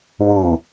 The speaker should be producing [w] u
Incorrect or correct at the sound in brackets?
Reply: correct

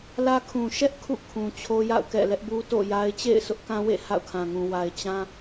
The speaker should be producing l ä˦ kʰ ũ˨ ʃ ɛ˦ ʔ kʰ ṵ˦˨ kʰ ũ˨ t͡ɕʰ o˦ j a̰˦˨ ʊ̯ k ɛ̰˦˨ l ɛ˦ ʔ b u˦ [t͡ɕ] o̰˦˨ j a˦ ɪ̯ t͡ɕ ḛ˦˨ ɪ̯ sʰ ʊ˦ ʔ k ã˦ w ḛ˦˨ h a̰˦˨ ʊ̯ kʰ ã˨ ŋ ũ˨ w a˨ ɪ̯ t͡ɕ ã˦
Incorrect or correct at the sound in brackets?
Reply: incorrect: t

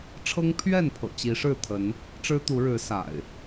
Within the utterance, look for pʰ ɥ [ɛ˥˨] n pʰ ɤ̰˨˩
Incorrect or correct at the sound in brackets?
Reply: correct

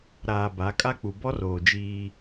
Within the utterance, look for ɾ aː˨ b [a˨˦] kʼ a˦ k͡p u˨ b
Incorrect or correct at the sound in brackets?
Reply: correct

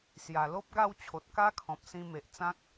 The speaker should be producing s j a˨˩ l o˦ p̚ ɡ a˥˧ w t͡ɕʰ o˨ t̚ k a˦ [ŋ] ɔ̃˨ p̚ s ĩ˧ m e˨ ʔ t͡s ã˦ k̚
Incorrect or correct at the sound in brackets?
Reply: incorrect: kʰ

